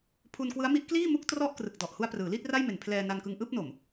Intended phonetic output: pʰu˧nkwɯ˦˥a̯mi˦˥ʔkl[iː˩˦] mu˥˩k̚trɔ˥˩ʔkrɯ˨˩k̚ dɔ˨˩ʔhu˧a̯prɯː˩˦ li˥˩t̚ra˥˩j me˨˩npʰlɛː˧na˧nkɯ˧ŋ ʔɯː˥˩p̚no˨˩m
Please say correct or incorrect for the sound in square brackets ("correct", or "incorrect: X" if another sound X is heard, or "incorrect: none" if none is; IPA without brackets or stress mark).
incorrect: iː˥˩